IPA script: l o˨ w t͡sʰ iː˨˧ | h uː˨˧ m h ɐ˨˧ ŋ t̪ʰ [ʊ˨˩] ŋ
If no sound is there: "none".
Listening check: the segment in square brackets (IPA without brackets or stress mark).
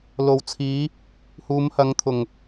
ʊ˨˩